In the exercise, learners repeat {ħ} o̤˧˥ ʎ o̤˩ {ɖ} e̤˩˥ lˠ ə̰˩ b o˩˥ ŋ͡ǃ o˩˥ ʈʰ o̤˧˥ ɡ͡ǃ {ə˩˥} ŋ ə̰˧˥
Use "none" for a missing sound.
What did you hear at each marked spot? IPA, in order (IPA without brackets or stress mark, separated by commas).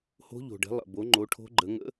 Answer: h, ɖ, ə˩˥